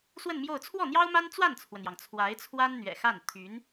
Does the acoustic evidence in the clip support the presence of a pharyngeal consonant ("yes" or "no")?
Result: no